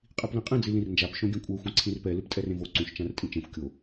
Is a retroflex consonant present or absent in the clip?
absent